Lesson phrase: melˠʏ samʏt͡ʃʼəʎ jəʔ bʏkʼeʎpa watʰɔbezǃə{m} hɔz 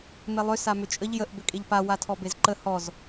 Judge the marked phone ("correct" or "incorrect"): incorrect